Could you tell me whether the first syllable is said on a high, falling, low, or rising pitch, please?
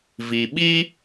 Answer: low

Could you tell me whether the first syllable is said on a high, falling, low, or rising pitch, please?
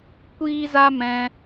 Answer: high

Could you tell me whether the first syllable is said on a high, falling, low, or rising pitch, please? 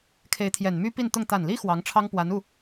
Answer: rising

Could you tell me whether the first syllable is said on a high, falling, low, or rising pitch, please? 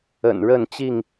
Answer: low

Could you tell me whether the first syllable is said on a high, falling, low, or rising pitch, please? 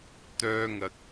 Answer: high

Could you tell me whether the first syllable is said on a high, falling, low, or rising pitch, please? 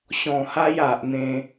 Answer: low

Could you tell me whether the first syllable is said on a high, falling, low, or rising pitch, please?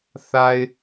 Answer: low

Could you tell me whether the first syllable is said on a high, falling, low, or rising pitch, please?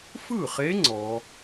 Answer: falling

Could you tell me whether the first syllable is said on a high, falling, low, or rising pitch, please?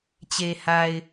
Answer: low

